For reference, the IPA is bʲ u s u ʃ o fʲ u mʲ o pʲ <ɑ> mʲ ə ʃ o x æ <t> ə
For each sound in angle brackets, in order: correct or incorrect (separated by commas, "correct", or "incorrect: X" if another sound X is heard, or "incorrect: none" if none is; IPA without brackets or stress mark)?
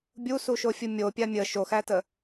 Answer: incorrect: a, correct